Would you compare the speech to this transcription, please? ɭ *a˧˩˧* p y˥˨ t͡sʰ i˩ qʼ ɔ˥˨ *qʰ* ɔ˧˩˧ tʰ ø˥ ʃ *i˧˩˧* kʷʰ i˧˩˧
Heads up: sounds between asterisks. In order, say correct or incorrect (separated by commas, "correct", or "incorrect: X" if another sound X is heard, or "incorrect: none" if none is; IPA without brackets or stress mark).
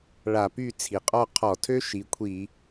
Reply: correct, correct, incorrect: i˩˧